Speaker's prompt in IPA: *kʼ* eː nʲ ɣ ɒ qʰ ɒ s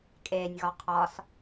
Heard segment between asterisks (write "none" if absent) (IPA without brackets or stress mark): kʼ